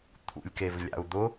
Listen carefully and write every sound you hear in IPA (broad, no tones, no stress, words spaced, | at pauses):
t̪ʰṵlʲkevlʲa̰u̯ d̪ʊ